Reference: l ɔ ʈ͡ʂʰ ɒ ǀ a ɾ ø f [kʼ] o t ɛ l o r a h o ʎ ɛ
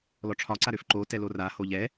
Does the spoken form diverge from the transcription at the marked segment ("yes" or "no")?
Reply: yes